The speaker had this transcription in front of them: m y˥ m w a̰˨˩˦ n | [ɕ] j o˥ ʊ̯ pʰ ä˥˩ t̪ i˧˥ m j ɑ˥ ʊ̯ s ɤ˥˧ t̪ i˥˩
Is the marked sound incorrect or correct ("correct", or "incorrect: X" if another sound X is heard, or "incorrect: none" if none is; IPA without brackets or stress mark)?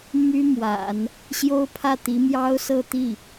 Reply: correct